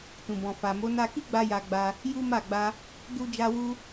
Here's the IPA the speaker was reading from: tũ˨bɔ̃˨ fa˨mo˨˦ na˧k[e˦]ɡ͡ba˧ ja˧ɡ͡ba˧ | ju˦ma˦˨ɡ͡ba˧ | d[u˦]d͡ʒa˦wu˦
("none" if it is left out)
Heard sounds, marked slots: i˦, u˦

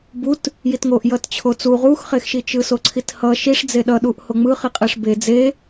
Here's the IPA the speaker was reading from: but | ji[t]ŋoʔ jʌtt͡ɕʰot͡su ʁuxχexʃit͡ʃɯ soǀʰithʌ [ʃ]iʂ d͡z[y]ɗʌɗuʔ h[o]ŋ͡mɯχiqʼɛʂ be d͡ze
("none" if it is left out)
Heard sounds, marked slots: t, ʃ, e, o

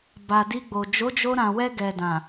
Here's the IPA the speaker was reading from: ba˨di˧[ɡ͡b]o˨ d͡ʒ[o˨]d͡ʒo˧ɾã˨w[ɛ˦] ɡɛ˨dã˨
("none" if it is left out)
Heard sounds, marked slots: ɡ͡b, o˨˦, ɛ˧

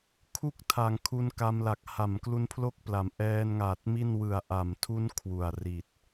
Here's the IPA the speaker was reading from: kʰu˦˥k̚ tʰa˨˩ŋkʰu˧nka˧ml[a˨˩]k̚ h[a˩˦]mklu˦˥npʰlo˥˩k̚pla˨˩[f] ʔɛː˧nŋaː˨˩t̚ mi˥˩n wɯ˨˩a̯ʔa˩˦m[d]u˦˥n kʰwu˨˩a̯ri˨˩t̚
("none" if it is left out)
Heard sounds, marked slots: a˨˩, a˩˦, m, tʰ

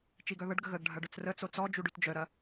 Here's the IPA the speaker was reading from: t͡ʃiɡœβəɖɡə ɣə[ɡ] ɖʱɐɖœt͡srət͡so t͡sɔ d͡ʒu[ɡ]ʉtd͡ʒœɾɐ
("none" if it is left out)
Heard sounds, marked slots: ɡ, ɖ

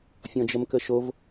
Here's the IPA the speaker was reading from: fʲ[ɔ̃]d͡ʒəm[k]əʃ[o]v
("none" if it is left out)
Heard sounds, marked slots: ɔ̃, k, o

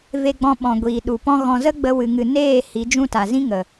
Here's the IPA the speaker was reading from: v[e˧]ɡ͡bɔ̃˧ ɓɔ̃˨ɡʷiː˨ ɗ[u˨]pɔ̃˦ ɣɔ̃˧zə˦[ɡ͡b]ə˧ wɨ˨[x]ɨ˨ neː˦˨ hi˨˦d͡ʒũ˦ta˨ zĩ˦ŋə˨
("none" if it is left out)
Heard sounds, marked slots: e˧, u˨, ɡ͡b, ŋ

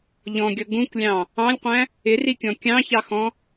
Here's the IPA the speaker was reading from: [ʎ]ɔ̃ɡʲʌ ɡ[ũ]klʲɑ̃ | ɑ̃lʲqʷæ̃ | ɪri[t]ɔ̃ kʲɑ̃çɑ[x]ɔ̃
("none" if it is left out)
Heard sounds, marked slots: ʎ, ũ, kʲ, x

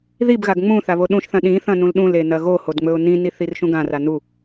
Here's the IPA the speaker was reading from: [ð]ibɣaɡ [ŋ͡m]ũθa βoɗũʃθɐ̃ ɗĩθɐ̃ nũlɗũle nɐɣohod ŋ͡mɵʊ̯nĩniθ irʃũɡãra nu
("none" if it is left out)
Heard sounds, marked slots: ð, ŋ͡m

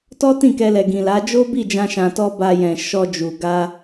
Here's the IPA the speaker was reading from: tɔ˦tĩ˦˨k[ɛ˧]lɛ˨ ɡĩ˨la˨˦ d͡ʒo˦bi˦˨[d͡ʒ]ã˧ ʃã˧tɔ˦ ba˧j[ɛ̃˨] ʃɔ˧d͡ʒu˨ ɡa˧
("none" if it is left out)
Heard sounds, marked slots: ɛ˧, d͡ʒ, ɛ̃˨

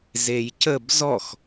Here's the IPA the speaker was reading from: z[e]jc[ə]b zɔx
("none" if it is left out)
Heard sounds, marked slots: e, ə

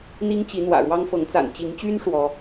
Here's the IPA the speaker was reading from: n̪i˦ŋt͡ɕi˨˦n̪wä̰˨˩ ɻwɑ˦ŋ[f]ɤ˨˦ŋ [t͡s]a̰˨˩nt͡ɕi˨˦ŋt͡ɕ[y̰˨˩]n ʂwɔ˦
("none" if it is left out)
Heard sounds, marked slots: f, t͡s, y˦

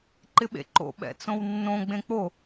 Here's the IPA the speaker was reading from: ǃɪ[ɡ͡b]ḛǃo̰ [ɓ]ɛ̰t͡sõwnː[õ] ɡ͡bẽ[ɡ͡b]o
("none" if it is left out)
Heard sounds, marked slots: ɓ, ɓ, õ, k͡p

